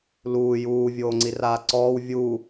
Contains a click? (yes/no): yes